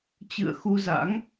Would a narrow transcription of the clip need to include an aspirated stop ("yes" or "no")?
no